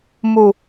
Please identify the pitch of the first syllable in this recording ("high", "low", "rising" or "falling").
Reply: low